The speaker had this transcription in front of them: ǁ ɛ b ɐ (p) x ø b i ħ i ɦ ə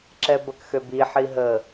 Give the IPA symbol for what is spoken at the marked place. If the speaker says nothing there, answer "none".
k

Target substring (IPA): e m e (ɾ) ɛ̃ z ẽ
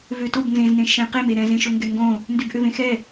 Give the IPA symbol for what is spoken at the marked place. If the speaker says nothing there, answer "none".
ɾ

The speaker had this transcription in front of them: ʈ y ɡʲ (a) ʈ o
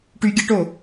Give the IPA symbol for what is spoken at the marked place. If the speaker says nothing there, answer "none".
ə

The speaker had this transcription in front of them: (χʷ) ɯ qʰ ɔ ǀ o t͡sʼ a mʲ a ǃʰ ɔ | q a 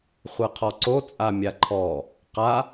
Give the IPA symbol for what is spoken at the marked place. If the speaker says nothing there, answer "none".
χʷ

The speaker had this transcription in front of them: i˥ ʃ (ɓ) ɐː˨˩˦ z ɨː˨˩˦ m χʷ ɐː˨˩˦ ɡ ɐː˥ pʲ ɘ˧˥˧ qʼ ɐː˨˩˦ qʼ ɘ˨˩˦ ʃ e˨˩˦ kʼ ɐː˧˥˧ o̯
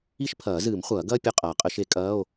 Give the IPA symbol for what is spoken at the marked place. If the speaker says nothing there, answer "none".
pʰ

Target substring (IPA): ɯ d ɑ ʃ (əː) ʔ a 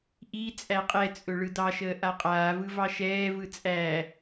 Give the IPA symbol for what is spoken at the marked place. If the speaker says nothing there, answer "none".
əː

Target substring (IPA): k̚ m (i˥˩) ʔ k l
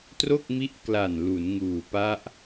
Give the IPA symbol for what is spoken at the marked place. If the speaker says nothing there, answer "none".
i˦˥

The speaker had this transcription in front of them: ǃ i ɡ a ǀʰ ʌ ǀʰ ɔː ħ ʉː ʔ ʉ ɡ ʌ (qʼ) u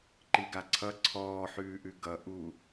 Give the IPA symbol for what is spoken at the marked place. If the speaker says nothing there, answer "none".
ʔ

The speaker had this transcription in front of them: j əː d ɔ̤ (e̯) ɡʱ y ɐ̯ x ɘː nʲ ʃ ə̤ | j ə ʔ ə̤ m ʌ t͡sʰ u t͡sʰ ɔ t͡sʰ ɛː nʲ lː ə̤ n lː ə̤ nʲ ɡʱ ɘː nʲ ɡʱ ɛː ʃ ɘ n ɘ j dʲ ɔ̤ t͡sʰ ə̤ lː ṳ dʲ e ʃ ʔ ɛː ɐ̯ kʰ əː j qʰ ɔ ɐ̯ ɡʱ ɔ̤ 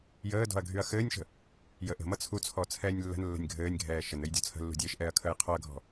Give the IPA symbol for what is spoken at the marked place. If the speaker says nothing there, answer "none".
ɐ̯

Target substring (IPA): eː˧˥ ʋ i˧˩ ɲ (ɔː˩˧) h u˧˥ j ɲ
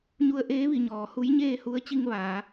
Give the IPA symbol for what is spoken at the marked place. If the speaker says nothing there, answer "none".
ɔː˩˧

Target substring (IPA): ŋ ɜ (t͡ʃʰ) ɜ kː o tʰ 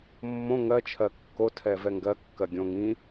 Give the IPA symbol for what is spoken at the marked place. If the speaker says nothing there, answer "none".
t͡ʃʰ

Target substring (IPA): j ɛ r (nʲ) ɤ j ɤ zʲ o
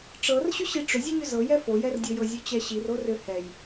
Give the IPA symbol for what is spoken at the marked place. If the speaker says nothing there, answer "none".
dʲ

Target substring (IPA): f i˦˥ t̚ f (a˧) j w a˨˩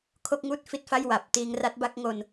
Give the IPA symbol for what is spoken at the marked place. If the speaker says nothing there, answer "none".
a˥˩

